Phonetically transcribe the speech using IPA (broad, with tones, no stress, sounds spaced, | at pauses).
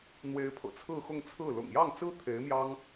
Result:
n̪ w e˧˥ ɪ̯ pʰ ɤ̰˨˩ t͡sʰ ɹ̩˥˧ x ʊ˥˧ ŋ t͡sʰ ɹ̩˥˩ l ʊ̰˨˩ ŋ j ɑ˥˩ ŋ t͡s ɹ̩˥ t̪ʰ e˧˥ ɪ̯ m j ɑ˥ ŋ